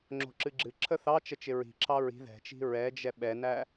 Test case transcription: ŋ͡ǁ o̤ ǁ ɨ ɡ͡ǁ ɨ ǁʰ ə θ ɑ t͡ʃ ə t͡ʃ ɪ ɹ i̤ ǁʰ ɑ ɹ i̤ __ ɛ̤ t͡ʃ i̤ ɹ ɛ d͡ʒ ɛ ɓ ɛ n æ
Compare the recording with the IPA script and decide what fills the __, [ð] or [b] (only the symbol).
ð